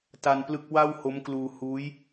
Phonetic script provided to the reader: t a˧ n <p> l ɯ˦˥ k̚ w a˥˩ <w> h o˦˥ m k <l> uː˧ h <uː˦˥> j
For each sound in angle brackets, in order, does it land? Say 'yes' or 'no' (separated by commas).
yes, yes, yes, yes